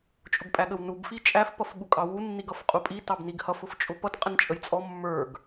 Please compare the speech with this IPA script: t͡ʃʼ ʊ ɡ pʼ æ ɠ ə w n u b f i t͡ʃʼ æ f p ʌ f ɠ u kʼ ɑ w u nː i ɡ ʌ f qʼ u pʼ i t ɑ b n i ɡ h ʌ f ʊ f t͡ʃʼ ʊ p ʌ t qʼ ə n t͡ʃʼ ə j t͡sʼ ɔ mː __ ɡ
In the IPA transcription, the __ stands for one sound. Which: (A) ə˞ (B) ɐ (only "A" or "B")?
A